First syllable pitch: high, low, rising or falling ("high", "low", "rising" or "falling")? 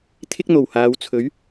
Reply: high